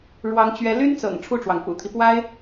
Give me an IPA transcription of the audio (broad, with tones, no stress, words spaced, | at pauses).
ɻwɑ˥ŋt͡ɕɥɛ˥ ly˥nt͡sɤ̰˨˩ŋ ʈ͡ʂʰu˥˩ʈ͡ʂwɑ˩ŋpṵ˨˩t̪ʰi˦ pwa˥ɪ̯